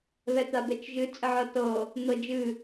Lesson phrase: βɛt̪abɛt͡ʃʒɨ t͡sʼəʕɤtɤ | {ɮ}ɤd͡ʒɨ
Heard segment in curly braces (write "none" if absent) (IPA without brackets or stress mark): n̪